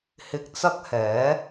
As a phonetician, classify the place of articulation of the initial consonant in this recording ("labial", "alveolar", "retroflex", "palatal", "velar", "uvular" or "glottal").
glottal